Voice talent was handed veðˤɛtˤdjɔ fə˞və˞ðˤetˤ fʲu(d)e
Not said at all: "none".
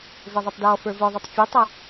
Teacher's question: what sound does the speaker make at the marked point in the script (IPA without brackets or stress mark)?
tˤ